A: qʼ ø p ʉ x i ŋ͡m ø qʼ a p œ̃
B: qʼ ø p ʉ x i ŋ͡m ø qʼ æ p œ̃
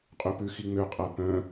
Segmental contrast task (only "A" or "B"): B